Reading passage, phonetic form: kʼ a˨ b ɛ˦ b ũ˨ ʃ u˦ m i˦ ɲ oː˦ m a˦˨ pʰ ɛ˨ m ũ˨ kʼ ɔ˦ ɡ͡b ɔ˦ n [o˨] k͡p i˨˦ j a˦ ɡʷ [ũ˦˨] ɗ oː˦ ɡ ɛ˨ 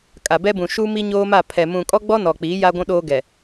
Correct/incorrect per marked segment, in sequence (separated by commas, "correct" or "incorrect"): incorrect, incorrect